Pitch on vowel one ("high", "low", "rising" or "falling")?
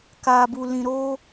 low